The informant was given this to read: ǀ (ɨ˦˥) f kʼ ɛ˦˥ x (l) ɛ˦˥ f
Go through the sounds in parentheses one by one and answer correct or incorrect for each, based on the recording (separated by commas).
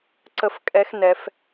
incorrect, incorrect